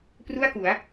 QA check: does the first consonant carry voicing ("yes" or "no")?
no